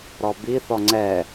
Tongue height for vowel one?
mid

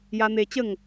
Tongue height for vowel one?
low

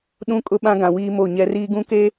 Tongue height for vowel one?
high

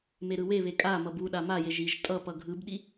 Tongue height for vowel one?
mid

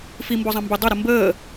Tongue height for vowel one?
high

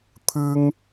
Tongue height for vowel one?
high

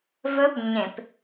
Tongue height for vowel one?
mid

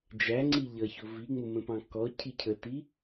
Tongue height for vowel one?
low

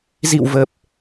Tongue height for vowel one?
high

